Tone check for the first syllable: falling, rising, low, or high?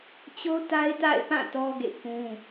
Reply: high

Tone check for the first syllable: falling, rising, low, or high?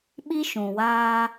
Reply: high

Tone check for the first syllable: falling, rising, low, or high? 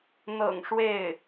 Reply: low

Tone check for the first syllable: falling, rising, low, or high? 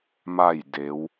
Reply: falling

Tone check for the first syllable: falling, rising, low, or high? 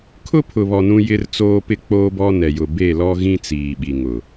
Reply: high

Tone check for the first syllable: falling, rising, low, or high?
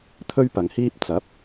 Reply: high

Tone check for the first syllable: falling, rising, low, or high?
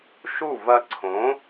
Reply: falling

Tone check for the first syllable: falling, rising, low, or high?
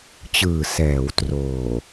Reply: low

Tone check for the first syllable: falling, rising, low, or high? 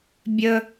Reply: high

